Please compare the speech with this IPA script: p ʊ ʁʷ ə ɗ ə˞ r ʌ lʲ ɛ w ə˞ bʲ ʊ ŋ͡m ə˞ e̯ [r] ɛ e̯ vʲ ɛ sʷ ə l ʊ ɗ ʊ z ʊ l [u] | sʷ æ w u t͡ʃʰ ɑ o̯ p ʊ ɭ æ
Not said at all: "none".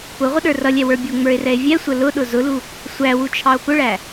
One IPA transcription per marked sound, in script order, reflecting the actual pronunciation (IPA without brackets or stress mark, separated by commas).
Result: r, u